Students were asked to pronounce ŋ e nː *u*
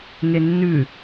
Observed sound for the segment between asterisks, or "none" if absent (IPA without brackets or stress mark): ʉ